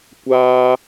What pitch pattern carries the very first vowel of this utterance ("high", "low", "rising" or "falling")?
high